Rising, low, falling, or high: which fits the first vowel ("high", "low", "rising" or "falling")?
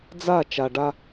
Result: falling